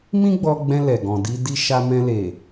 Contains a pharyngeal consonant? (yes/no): no